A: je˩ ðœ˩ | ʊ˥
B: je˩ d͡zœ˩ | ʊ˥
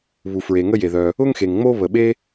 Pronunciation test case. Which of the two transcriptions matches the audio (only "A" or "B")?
A